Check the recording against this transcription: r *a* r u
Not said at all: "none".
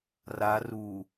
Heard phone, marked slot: a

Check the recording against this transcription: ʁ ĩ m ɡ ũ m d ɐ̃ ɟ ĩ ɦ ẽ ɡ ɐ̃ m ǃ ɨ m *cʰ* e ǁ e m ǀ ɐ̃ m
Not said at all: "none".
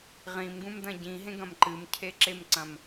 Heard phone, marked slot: cʰ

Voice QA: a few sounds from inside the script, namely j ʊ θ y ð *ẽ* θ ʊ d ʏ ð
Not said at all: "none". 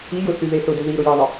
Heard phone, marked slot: e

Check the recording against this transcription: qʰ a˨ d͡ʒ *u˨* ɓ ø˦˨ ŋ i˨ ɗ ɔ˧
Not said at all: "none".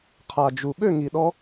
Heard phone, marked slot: u˨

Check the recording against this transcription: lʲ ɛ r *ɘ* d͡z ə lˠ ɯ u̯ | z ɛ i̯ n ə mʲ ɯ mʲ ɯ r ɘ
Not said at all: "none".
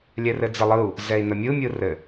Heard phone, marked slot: ɘ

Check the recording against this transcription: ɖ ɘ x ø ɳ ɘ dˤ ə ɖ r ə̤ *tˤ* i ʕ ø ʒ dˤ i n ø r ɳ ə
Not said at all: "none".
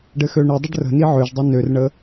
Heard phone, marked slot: n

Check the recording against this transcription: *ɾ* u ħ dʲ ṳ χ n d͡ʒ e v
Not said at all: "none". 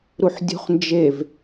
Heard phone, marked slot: ɾ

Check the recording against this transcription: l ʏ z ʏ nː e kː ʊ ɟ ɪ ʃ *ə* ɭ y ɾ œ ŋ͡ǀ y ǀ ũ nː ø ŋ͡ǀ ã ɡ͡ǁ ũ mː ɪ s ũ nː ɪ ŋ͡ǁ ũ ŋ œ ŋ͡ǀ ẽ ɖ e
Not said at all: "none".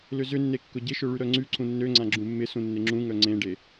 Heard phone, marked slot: ø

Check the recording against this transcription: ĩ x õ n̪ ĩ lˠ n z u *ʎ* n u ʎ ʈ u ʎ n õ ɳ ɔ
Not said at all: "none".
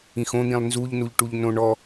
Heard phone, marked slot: ʎ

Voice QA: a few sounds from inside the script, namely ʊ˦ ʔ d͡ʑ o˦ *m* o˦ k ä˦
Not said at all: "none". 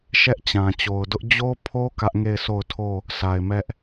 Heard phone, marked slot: pʰ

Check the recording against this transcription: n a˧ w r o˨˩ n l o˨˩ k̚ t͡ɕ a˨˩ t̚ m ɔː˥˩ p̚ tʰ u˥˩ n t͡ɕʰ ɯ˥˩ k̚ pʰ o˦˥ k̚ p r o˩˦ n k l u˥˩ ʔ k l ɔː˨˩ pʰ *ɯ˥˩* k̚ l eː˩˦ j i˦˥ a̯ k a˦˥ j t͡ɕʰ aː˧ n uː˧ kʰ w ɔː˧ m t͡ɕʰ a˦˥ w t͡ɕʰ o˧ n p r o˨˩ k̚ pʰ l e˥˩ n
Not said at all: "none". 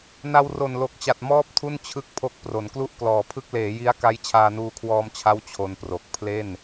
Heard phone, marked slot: ɯ˥˩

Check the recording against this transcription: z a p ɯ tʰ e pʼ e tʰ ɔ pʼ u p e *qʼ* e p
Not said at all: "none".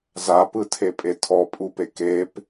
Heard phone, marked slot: k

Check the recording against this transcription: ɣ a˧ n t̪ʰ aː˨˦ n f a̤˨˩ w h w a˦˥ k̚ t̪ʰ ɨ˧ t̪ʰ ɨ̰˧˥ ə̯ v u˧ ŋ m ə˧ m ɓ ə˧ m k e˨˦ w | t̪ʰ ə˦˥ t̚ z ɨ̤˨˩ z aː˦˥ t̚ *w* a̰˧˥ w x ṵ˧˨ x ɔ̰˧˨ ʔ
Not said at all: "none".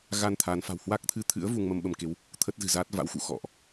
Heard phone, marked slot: v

